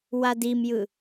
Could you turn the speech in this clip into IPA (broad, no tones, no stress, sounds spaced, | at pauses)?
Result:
w a d i m j ɯ